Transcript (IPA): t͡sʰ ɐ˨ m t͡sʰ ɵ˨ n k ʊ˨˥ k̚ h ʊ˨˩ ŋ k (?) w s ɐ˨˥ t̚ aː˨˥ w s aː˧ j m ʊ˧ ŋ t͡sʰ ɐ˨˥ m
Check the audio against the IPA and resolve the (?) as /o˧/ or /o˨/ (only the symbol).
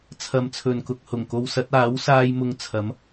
o˧